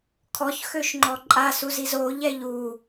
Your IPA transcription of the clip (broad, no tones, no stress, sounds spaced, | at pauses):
kʰ ɔ ç x ø ʃ ŋ͡ǃ ɔ ǃʼ a s u z i z o ʎ ɛ ʎ u